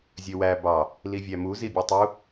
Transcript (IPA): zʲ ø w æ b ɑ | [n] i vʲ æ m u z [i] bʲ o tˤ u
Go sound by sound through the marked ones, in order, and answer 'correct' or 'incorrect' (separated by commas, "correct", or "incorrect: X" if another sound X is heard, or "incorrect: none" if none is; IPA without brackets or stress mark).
incorrect: l, correct